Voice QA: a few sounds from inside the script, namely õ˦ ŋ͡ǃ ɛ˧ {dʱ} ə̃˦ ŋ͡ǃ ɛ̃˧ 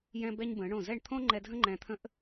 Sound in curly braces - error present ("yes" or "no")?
no